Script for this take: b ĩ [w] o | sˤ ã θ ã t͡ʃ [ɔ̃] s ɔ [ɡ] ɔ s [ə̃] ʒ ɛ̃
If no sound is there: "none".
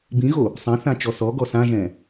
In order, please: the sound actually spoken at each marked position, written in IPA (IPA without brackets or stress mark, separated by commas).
ɣ, ɔ, ɡ, ã